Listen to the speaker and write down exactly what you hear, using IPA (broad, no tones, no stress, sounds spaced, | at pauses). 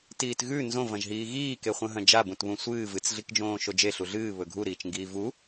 t iː t ɣ ʉ n z õ v ɐ̃ ʒ ɦ iː ɣ iː k e χʷ ɐ̃ ɦ ɐ̃ d͡ʒ a b ũ t β ũ sʷ ɨː v ɨ t͡s ɮ i k d͡ʒ õː ʃ o d͡ʒ e ɬ u ɮ ɨː β ɵ ɡʱ u ɾ iː t͡ʃ ŋ ɡ iː v u